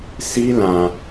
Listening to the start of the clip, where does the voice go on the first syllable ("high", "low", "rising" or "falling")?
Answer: high